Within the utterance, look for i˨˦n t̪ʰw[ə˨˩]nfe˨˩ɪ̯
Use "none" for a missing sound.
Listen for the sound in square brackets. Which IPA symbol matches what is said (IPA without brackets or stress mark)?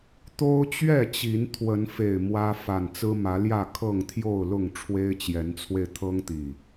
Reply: ə˨˦